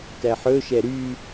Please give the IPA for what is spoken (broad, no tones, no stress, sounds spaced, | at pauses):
t æ ħ ɵ ʃ ɛ ɾ y